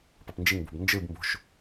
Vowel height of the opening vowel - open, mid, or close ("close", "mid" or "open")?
mid